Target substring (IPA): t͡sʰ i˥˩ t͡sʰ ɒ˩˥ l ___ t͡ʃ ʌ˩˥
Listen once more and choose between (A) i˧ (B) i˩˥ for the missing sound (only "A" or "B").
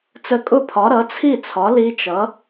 A